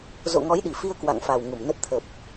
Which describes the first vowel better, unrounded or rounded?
rounded